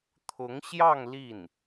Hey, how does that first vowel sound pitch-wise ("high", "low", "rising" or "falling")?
rising